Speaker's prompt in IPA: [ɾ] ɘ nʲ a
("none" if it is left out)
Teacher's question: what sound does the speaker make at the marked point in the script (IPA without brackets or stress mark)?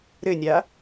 ɾ